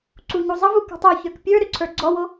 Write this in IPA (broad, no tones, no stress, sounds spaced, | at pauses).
ǀ u ɲ u zˤ ə v u k ṳ tˤ o ç ə˞ k pʲ ə˞ ɾ ʏ ǀʰ ə˞ ɡ͡ǀ ɔ w o